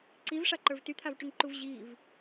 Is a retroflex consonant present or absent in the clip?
present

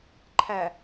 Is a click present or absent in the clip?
present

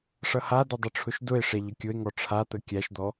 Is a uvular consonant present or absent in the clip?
absent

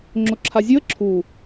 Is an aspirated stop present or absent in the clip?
present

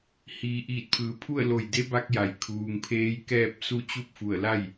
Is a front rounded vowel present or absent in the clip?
absent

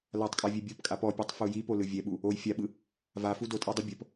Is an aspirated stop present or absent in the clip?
absent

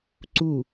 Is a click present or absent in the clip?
present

